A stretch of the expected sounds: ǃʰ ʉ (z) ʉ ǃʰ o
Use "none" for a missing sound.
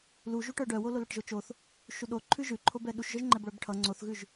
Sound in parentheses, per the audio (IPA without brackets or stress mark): ʒ